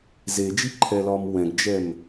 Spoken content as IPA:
z e d͡ʒ i ǃʰ ɛ l ɒ m w ɛ̃ ɡ d͡ʒ ɛ m

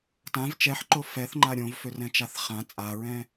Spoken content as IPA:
t ã v t͡ʃ ɛ ħ ǃ o f ɛ θ ŋ͡ǃ a ɾʲ õ v f ø r ɛ̃ t͡ʃ a θ χ ã t͡sʼ a ɹ ɛ̃

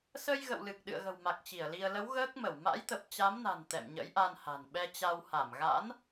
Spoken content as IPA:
s ə˧ j ɣ ə̰˧˨ w l ɨ˨˩ k̚ ɗ ɨ̰˧˨ ə̯ ɣ ə̤˨˩ w m a˨˩ k̚ t͡ɕ i˧˩ ə̯ l i˧ ə̯ l ə˨˦ w ɣ əː˦˥ k̚ m ə˧˩ w m a̰˧˥ j t̪ ə˨˩ p̚ t͡ɕ a˨˦ m n a̤˨˩ n t̪ ɛ̰˧˨ m ɲ ə̰˧˥ j ʔ a˧ n h a̤˨˩ n ɓ ɛ˧ t͡ɕ a˧ w h a˧˩ m ɣ a̰˧˥ n

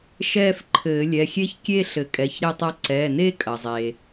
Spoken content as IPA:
ʃ ɛː˥˧ f ǃʰ ɘː˨˩˦ lʲ ɛ˩˧˩ xʲ e˥ ç kʲ e˥˧ ɬ ɘ˨˩˦ kʼ ɛ˩˧˩ ç ɾ e˥ tˤ a˥ ǀ ɛ˩˧˩ n e˥ kʼ ɐ˩ zˤ e˩

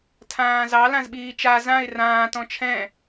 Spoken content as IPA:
tʰ ãː z ɑ l ã z ɓ iː t͡ʃ a z ã ɪ̯ r ãː t ɔ̃ t͡ʃʰ ɛ̃

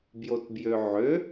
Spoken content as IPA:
b j o t b j ø ʕ ø

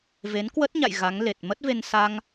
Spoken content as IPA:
v e˨˦ n k w ə˦˥ t̚ ɲ a̰˧˨ j ɣ a˨˦ ŋ l e˨˩ t̚ m ə˦˥ t̚ v e˧ n s a˧ ŋ

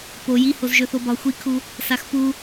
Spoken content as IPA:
p o j i h o z ʒ ɵ θ o b ɒ xʷ i kʰ u | s a x p u

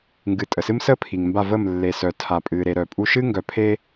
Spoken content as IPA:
ŋ ɡ ɨ˨ tʼ ə˨ s ɨ˦ m s ə˦ pʰ i˨ ŋ m b a˦˨ v ə˦˨ m lː e˨ s œ˨ tʰ a˨ pʼ ɨ˨ ɾ e˨ ɾ œ˨ pʼ u˦ ʃ ɨ˦ ŋ ɡ œ˨ pʰ e˦

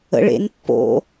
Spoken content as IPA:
ə̰ ɭ ḛ n pː o̰

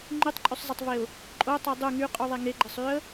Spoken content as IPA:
ŋ͡ǃ y tˤ ǃʼ y sˤ zˤ e tˤ v e ʊ̯ | ǃʼ o tˤ ɤ dˤ u ŋ y qʼ y ðˤ e ŋ e ɡ͡ǃ ɤ sˤ y ə̯

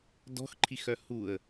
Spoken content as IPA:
d ɔ̤ x ǃʰ i x œ h u ə̯

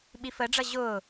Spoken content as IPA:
ɓ i f əː ɖ͡ʐ ʌ ʑ ʊː

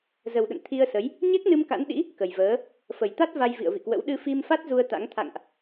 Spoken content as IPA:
z ə˨˩ w ɗ ə̰˧˨ n t̪ʰ i˧ ə̯ s ə˨˦ j | ɲ ɛ˦˥ k̚ n ɨ˧ m k a̰˧˥ n ɗ ḭ˧˥ | k ə˨˩ j v əː˨˦ | f ə˧˩ j t̪ a˦˥ t̚ v a˧ j v ḭ˧˨ ə̯ v ḭ˧˨ k w ə̰˧˥ w ɗ ɨ˧ f i˧ m f a˦˥ t̚ z u˧ ə̯ t̪ a̰˧˥ ŋ t̪ʰ a̰˧˨ ŋ ʔ

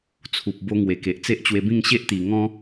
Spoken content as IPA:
t͡sʰ u˨ p̚ b o˧ ŋ w e˨˩ k e˨ ʔ t͡s e˦ ʔ t͡ɕ w e˧ b ĩ˥˧ ŋ ɕ e˦ ʔ t̪ i˨˩ ŋ ɔ̃˦

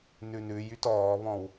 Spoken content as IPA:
n ʉ n ʉ j y t ɔː β ɔ̃ w

